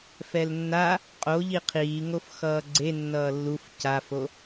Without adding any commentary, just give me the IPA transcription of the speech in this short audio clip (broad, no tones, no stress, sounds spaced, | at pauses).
f ɛ l nː a | qʼ o ʎ i qʰ iː ŋ o f x ʌː ɡ͡ǀ e nː ʌː lː u f c a f o